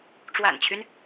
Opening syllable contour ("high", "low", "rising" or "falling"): low